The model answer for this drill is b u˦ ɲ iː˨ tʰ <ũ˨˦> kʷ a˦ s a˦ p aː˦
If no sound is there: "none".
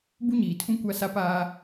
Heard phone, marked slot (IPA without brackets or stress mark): ũ˦